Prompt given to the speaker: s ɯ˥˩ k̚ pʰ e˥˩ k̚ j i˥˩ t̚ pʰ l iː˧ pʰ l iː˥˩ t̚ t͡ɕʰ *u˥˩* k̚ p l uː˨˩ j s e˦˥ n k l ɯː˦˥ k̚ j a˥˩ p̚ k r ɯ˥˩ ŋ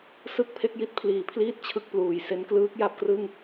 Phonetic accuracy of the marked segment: incorrect: ɯ˥˩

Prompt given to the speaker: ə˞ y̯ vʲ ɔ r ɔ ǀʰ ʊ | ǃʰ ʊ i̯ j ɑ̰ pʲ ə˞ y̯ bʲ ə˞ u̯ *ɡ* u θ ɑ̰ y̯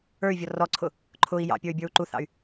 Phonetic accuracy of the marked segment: incorrect: ǃ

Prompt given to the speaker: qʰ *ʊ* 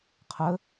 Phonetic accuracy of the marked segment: incorrect: ə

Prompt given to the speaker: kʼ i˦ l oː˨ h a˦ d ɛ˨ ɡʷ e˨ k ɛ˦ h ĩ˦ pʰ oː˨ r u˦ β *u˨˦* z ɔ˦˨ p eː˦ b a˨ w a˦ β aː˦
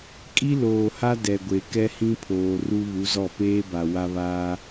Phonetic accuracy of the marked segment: correct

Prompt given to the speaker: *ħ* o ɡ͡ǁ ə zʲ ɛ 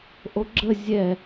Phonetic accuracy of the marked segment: incorrect: ʔ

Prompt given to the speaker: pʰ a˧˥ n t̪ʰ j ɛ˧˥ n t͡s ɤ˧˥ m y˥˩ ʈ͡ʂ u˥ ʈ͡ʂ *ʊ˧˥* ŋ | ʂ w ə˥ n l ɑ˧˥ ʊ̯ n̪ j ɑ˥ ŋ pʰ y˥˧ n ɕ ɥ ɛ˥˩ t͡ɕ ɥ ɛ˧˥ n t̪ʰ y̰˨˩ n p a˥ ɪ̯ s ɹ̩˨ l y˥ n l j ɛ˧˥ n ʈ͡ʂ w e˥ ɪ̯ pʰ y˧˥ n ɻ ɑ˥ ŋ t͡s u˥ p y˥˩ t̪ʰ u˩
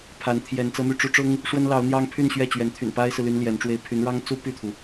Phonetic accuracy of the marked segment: incorrect: ʊ˥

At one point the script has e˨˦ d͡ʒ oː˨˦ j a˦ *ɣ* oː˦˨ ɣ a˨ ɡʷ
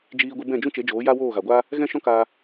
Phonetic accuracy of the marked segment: incorrect: w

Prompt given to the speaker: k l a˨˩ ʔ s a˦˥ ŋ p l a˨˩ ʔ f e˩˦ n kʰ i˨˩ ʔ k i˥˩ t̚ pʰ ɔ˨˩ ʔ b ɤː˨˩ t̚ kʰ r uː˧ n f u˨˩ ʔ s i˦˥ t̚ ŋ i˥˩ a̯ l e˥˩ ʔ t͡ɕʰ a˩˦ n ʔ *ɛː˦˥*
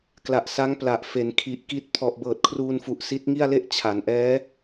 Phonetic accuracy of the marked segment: correct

